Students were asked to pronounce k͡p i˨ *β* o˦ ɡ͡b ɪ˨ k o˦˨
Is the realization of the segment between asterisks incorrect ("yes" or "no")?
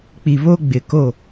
no